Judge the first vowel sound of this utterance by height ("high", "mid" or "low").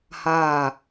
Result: low